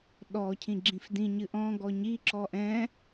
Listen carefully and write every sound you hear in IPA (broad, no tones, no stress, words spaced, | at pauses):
ɗɔ cʰĩɡ͡ǁĩfdĩ ɲɨʔɔ̃ ɡɔɲi ǁɔʔɛ̃